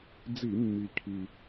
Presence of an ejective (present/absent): absent